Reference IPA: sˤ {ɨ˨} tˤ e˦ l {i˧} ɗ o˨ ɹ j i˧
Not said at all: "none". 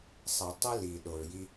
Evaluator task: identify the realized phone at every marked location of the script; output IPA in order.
ɛ˨, i˨

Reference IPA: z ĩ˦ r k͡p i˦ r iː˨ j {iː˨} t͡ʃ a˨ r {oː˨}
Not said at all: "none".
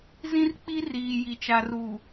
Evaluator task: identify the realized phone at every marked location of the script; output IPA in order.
i˨, uː˨

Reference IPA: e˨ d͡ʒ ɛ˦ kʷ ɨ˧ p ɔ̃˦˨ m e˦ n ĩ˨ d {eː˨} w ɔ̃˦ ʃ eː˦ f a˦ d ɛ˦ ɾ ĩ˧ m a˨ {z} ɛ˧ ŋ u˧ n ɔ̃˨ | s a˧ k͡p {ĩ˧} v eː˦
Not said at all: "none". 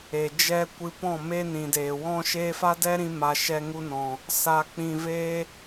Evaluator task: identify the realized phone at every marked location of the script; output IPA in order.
eː˨, ʃ, ĩ˧

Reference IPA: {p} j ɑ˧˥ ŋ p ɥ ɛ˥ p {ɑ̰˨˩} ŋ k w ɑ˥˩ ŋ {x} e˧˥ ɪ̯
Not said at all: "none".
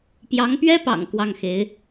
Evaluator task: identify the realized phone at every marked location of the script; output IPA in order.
p, ɑ̰˨˩, x

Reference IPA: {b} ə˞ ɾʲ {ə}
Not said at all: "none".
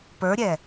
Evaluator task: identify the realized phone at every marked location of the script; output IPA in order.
p, ɛ

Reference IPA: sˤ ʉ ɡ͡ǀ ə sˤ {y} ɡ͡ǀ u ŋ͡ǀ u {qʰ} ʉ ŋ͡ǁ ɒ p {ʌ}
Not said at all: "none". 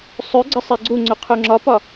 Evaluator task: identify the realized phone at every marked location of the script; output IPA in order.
i, qʰ, ɒ

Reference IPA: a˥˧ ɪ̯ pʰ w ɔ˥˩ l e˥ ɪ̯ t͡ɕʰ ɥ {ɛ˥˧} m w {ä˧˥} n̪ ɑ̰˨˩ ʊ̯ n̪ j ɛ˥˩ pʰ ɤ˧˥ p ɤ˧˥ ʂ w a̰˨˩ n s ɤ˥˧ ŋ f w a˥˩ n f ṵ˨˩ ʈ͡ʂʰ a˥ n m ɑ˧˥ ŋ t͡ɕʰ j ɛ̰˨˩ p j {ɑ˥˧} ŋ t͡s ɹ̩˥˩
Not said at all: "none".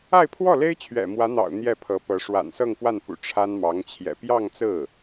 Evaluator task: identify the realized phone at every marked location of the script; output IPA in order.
ɛ̰˨˩, ä˧˥, ɑ˥˧

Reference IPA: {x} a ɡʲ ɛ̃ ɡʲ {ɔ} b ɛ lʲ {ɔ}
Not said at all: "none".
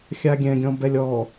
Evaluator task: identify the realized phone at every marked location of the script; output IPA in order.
xʲ, ɔ̃, ɔ

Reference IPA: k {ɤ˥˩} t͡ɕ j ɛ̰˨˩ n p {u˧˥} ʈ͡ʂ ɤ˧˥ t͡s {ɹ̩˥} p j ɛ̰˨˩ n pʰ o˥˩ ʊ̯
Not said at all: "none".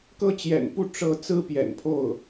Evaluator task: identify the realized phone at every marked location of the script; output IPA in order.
ɤ˥˩, u˥˩, ɹ̩˥

